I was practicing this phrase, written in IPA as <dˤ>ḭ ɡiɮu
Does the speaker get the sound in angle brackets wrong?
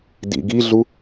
yes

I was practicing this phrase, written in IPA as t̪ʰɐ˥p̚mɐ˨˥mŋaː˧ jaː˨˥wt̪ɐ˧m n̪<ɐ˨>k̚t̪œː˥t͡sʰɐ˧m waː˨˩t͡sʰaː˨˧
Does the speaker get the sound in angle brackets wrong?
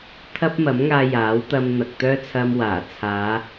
no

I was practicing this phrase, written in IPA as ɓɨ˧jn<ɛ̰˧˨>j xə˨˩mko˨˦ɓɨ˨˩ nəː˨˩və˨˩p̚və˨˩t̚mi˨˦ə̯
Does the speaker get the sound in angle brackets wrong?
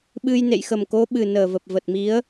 yes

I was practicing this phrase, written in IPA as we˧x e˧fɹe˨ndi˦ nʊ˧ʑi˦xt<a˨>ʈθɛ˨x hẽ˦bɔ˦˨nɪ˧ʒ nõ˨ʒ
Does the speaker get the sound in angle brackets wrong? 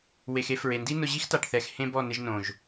no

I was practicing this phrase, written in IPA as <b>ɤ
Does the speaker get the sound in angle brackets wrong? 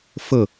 yes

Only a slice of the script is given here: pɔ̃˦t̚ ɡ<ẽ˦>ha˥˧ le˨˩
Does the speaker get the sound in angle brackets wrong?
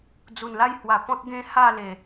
no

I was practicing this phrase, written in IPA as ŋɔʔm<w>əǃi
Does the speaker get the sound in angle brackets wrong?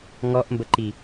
yes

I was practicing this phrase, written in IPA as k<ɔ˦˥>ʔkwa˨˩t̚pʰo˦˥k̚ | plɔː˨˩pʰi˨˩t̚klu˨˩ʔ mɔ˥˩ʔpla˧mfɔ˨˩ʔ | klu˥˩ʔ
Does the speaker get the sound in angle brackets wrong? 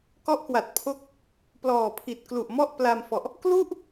no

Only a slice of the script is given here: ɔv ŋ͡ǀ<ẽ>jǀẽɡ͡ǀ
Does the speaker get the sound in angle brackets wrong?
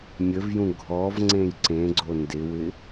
no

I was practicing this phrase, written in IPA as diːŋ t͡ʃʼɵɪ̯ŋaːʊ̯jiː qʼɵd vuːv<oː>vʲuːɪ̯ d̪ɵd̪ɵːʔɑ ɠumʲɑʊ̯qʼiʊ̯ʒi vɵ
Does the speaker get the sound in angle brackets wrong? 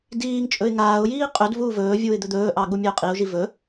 yes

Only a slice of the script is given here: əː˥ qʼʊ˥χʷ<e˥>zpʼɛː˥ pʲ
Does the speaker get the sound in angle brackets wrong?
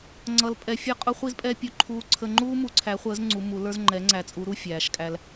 yes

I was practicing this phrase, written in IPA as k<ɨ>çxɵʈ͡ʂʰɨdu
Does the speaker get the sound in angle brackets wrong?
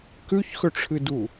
yes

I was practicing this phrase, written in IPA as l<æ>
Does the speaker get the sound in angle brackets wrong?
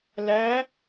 no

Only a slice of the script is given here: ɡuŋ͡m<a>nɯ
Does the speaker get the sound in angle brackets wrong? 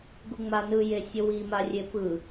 no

